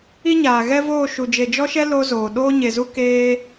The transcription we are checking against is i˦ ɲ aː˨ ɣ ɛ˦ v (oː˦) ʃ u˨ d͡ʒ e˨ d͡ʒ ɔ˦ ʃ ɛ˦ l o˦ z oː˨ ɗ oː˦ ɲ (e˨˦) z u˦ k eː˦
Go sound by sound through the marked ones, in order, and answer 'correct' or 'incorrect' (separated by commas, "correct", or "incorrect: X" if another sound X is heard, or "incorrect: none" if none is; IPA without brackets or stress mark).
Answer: incorrect: oː˦˨, incorrect: e˨